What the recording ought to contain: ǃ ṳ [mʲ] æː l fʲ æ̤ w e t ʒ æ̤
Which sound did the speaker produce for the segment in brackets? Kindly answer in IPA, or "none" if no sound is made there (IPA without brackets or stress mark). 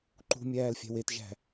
mʲ